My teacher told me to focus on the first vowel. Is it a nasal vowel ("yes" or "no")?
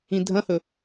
yes